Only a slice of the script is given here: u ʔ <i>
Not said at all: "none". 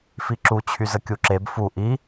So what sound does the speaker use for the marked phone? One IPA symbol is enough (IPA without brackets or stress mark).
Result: i